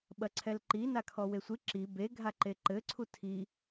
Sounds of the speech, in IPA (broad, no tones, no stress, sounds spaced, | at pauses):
ɓ ɐ ǀʰ ɛ l ǃ i n a kʰ ɔ w e sʷ ɨ ǁ i b e ɡʱ a ǃ e ǃ ɘ ǀʰ u tʰ i